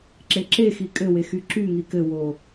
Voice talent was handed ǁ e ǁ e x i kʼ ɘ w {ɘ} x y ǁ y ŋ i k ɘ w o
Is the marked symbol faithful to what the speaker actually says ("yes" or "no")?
no